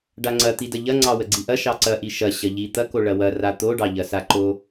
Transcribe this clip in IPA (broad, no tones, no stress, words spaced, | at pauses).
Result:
ɖaŋ͡ǀɐ t̪idɐʎɐ ŋ͡ǀɑwəɡ͡ǀiʔɐ ʃɑǀɐʔi ʃɐ ɕɐʎi t̪ɐko ɭɐwɐ rat̪oɖɑ ʎɐsaǃo